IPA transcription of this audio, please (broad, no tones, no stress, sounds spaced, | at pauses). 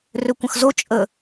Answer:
r ø kʷ ə̃ x z o t͡ʃʼ ə